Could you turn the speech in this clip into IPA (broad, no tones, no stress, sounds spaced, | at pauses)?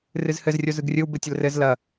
r ɨ z h ɘ z rʲ o z ɯ ɡ rʲ ɯ w b ɘ tʲ ə l r ɘ z l ɐ